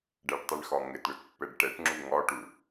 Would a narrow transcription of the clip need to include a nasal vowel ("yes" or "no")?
no